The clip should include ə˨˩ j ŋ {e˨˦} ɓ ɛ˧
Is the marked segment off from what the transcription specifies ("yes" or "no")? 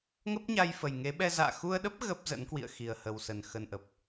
no